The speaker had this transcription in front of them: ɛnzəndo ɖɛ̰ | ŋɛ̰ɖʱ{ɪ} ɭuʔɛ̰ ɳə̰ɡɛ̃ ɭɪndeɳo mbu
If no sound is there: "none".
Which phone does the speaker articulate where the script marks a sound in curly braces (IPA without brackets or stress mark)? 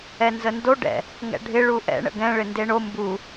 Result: ɪ